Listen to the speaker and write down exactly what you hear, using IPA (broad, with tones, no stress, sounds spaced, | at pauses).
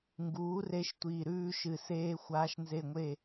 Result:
ŋ ɡ uː˨˥ r e˦˥ ʃ tʷ iː˧˩ ɾ ʉː˦˥ ʃ ɨ˧˩ s eː˦˥ xʷ aː˦˥ ʃ n z e˥˧ ŋʷ e˥˧